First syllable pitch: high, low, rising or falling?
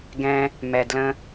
low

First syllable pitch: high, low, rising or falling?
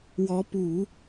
rising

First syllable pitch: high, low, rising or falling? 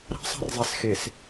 high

